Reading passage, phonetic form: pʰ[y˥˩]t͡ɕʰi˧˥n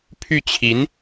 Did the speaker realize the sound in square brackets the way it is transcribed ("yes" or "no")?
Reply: yes